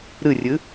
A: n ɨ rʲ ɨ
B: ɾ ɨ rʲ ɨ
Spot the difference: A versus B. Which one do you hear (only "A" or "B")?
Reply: B